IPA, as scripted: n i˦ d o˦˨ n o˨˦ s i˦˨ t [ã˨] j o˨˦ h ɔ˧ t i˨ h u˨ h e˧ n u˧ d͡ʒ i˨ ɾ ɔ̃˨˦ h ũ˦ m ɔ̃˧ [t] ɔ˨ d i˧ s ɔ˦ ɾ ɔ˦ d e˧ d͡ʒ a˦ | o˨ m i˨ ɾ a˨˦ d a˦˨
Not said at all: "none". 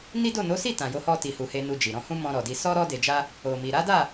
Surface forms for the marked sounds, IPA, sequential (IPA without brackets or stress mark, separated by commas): ã˨, ɾ